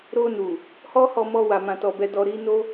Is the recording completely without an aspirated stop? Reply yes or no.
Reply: yes